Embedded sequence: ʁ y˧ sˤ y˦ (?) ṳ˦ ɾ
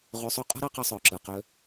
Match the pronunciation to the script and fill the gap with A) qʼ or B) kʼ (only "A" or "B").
A